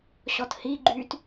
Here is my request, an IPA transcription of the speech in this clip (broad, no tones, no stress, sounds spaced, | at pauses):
ɕ ɔ t h i ɡ͡ǃ yː t